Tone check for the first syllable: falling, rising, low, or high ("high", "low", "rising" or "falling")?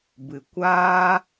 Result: low